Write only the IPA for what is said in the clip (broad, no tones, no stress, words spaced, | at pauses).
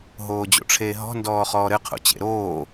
ɦoːd͡ʑo̰ʈ͡ʂʰeːɦɔ̤ ndɔːχɔːɾɘ qʰo̰t͡ɕḛɾoː